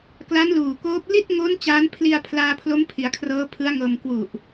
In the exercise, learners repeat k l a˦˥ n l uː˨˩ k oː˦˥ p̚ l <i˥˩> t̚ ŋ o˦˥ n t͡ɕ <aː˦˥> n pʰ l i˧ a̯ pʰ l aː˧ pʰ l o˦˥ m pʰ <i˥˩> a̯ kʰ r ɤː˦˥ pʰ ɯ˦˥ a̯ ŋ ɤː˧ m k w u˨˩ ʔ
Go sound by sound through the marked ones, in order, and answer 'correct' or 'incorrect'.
correct, correct, incorrect: i˩˦

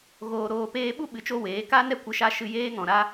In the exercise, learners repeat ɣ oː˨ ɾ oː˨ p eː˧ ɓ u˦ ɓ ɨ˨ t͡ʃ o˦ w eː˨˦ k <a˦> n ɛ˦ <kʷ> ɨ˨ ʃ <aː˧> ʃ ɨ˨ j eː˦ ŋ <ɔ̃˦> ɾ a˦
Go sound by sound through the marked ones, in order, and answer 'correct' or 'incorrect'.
correct, correct, incorrect: a˧, incorrect: ɔ̃˨

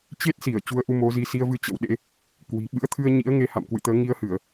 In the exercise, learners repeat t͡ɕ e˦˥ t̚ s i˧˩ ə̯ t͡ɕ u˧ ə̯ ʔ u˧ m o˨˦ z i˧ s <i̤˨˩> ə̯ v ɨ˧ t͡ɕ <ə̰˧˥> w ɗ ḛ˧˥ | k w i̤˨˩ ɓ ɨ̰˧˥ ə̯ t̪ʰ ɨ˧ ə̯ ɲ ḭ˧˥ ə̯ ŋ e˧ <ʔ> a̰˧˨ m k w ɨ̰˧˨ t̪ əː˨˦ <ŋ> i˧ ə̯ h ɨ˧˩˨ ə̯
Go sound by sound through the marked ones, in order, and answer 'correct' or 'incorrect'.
incorrect: i˧, correct, incorrect: h, correct

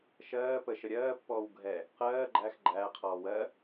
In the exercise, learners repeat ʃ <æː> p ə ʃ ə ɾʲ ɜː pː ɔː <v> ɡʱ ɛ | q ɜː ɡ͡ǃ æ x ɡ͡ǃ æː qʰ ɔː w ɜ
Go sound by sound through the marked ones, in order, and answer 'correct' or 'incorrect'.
incorrect: ɜː, incorrect: w

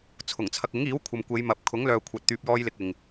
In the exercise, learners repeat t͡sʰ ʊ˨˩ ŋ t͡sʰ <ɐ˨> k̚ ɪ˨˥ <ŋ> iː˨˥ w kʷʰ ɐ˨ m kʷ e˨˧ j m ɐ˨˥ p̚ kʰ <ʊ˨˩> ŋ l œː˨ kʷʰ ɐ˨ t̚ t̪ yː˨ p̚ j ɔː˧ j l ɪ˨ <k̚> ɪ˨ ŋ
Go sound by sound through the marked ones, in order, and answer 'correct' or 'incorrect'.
correct, correct, incorrect: ʊ˨˥, correct

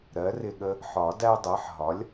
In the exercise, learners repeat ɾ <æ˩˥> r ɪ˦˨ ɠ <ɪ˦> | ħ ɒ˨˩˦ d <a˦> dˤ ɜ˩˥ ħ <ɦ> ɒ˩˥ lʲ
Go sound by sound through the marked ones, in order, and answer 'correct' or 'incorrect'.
incorrect: ɜ˩˥, incorrect: ə˦, incorrect: æ˦, correct

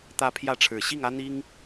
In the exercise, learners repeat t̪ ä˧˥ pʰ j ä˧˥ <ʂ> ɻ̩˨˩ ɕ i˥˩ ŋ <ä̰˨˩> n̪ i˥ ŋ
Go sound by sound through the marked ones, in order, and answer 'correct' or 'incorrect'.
incorrect: ʈ͡ʂʰ, incorrect: ä˥

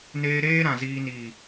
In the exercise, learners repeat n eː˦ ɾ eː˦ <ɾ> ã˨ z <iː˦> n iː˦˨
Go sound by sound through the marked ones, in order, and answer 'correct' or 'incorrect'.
correct, correct

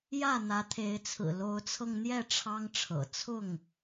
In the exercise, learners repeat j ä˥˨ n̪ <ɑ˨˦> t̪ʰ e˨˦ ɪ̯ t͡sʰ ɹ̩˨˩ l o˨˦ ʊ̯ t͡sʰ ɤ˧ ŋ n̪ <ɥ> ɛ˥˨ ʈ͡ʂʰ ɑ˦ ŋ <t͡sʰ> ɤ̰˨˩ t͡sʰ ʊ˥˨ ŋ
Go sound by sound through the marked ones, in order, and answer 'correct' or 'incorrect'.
incorrect: ä˨˦, incorrect: j, incorrect: ʈ͡ʂʰ

